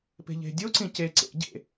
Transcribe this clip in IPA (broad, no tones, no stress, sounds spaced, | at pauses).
p e̤ ʎ e̤ dʲ o ǀ ĩ c e ǀ ḛ ɟ ḛ